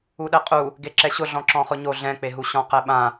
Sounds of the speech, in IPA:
uɗɛqʼu | ɡeǁɛɕʊ ɮɔ̃ǁɔ̃χʊɲo ɮɛ̃k͡peɦu ɕɔ̃qɛɓã

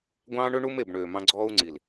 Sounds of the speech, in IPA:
ɡʷɑ̃ː˦ɳø˦ ɳu˦me˦˨b ɳøː˨mɑ̃˧ ɡ͡ǀɔː˧u̯ŋ͡ǀi˨l

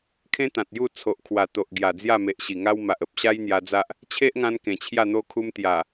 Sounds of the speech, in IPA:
kʰẽ˦t̪ã˨t̚ju˥˧ t͡sʰo˨ʔ kʰwa˨˩ t̪o˨ʔɡja˨˩d͡zja˥˧ me˨ʔɕi˨˩ŋa˦wma˨ʔ ə˨p̚ɕa˦j n̪ja˧d͡za˦ʔ | t͡ɕʰe˦ʔŋã˧n kẽ˨˩t͡ɕʰja˥˧n̪o˦ kʰu˧mt̪ja˨˩

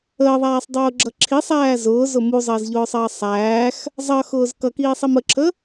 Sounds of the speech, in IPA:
əːðˤæːsˤdˤʊːɡ͡ǁʌ ǁʰisˤæː zʊːzʊ muzˤəːzʎʊːsˤʌː sˤæːx | zˤʌxʊːz kʌkiːsˤim əǁʰə

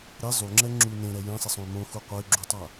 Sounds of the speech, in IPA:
ɾe zˤuŋ͡ǁɛ ŋ͡ǁu nẽɾɛ jẽsˤesˤõy̯ mõxu qʷɛy̯ɡ͡ǁutˤa

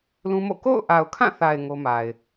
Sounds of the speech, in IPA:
lũ˦mo̰˦˨ ko̰˦˨ʊ̯ʔa˨ʊ̯kʰã˦˨θa˨ɪ̯ ŋo˦ma˨ɪ̯

